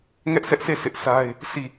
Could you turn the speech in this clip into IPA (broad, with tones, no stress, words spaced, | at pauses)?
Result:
ŋɛ˦ʔsʰɛ˦ʔsʰe˦˨ sʰɪ˦ʔsa˦ɪ̯ | sʰi˦˨